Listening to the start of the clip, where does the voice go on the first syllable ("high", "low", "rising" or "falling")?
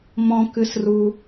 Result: high